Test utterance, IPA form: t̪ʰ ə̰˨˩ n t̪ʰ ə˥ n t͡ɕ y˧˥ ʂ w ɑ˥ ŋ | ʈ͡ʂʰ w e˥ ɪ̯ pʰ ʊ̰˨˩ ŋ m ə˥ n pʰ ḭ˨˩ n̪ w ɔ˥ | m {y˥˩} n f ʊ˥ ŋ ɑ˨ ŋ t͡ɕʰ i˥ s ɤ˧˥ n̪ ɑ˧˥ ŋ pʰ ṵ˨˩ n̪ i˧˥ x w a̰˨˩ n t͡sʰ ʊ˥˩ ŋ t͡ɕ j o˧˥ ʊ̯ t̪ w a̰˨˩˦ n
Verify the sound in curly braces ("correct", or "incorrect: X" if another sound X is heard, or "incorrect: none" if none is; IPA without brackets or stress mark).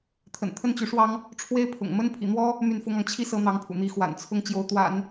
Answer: correct